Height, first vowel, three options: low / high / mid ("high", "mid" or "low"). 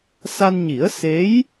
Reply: low